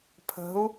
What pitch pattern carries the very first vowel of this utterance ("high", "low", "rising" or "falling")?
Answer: rising